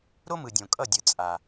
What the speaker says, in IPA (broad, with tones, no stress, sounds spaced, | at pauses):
ɾ o˦ m ɯ˨ dʲ õ˨ kʼ ʌ˦˨ dʲ ɯ˨ t͡sʼ a˨